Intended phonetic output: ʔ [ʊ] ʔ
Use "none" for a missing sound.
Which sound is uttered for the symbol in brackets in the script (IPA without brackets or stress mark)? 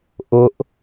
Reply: ʊ